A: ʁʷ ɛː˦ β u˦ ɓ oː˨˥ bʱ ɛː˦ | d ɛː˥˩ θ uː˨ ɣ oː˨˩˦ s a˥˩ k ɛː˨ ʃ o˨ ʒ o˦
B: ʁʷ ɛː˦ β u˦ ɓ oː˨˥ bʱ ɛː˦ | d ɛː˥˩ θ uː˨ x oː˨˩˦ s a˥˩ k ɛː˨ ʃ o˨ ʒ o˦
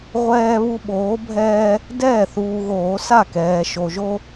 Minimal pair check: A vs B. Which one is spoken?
A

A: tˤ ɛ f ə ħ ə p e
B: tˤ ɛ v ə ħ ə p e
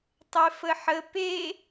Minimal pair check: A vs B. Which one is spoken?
A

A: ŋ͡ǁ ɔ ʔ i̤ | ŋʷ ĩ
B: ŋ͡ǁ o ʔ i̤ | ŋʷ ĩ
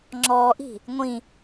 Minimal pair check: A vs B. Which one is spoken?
A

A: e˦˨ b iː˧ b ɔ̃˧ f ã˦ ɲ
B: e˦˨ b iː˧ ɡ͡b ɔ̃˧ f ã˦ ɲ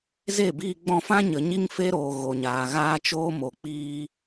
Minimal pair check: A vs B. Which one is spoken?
B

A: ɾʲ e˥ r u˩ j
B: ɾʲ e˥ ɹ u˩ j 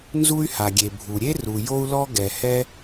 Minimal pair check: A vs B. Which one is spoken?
A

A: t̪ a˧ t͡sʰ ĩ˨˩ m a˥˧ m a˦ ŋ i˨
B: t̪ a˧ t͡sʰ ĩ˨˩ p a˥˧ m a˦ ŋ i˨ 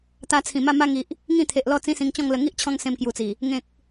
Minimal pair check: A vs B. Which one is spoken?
A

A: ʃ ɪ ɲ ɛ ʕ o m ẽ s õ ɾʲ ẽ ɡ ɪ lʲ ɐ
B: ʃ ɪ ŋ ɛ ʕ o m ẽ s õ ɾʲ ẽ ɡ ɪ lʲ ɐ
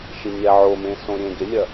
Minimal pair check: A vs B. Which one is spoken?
A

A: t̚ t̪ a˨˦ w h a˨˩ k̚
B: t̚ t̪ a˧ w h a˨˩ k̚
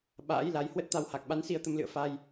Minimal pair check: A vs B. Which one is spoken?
B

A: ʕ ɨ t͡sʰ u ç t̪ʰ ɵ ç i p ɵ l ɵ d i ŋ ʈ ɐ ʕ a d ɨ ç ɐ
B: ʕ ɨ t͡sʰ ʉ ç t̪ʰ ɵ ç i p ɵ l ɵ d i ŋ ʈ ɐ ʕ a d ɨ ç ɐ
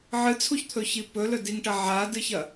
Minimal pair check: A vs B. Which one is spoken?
A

